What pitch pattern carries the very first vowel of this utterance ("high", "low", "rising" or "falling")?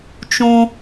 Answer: high